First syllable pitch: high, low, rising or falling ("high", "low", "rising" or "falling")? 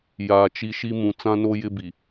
low